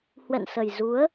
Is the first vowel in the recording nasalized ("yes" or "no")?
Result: no